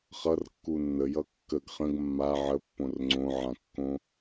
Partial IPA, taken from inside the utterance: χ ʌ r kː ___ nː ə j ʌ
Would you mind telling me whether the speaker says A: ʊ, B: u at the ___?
B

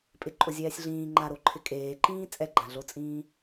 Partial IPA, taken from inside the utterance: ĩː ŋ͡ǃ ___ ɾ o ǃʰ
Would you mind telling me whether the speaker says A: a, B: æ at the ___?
A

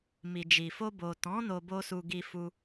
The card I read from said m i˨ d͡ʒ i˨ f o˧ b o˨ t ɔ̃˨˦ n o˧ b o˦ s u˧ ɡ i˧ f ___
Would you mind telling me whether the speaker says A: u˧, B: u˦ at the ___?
A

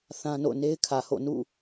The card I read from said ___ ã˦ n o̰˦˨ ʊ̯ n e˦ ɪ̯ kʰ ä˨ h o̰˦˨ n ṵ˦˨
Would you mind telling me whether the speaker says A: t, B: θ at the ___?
B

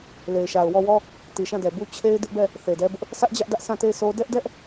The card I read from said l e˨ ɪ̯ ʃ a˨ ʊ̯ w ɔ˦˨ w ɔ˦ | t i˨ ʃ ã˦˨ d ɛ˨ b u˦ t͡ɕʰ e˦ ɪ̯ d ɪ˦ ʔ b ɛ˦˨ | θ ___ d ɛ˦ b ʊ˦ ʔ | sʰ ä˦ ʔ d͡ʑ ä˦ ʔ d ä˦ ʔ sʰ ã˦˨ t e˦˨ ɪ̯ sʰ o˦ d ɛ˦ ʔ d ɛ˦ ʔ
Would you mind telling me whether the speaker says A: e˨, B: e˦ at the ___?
A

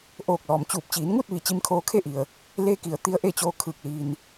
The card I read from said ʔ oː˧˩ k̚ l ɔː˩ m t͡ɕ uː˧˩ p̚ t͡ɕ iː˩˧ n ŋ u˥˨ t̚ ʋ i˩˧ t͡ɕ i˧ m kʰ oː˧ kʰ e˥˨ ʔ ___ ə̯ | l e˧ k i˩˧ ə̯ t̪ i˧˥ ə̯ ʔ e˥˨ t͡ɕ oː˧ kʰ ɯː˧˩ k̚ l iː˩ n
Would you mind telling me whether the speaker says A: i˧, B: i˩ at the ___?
B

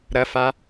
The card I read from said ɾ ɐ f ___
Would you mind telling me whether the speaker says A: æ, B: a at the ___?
B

